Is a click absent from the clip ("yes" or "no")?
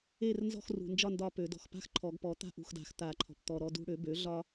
no